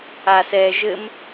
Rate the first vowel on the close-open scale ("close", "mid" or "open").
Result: open